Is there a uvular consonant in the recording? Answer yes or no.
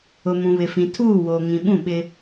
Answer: no